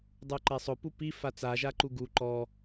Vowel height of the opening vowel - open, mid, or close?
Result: close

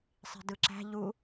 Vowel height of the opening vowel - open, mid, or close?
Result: close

